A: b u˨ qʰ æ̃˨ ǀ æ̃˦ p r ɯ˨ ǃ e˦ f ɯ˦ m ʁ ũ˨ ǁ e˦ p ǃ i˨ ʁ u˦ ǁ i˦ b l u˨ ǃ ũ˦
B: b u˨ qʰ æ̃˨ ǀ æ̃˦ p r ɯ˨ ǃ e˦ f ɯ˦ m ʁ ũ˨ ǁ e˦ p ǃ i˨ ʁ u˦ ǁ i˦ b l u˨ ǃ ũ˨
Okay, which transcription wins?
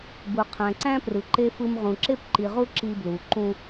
A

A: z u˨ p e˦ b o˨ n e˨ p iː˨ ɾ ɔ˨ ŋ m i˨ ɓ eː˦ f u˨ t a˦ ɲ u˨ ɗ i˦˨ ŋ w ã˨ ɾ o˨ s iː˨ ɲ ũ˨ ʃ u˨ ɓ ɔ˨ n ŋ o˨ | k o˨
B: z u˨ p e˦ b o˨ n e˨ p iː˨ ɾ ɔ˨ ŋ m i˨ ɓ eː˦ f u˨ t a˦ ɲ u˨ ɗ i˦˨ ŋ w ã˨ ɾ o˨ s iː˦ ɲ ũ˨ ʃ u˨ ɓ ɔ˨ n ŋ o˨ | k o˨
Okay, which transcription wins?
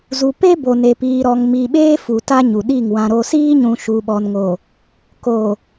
B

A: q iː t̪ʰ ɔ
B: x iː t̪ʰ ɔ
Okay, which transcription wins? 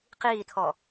A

